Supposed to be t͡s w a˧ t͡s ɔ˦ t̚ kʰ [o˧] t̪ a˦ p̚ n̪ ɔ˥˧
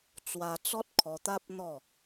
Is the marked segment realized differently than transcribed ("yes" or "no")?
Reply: yes